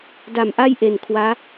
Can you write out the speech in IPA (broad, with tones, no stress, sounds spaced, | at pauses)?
d a˨˩ m ʔ a˥˩ j ʔ e˨˩ n kʰ w aː˦˥